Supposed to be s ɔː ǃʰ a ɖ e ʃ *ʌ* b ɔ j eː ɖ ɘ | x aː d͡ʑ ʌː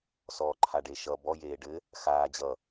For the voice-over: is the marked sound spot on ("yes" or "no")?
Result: yes